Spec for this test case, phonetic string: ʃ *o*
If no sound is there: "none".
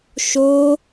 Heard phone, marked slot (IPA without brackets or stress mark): o